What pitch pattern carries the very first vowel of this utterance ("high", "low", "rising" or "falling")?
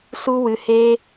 high